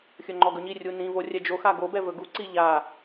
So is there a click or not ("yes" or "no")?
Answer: yes